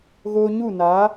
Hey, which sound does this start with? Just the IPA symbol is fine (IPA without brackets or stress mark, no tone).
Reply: ɣ